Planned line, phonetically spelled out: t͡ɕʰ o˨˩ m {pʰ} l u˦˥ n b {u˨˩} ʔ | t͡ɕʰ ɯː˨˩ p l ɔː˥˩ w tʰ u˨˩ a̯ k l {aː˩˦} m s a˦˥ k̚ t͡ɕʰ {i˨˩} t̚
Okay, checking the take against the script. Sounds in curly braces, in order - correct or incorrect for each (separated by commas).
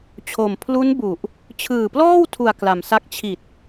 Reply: correct, correct, incorrect, correct